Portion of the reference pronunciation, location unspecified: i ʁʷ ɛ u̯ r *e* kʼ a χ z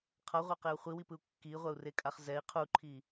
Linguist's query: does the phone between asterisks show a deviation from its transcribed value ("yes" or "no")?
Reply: no